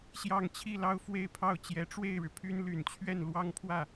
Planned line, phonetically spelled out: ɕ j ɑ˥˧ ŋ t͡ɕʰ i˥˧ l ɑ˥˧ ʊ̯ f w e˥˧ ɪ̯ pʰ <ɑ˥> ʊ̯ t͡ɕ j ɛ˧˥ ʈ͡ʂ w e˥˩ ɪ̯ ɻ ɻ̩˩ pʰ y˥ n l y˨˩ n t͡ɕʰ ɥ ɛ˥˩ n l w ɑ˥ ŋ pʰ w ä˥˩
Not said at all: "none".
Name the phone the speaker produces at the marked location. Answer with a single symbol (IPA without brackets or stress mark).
ɑ˥˩